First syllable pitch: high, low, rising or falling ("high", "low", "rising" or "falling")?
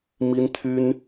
high